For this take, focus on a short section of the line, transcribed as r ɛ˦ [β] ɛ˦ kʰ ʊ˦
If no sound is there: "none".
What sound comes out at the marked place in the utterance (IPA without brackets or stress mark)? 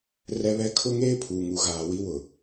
β